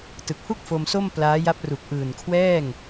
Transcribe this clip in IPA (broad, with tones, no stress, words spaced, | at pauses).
tɯ˨˩k̚hu˥˩k̚ fo˧mso˥˩m plaː˦˥ ja˦˥p̚ru˨˩k̚ ʔɯː˨˩nkʰwɛː˥˩ŋ